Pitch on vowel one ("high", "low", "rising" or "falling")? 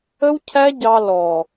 high